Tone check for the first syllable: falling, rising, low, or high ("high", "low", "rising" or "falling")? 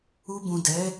low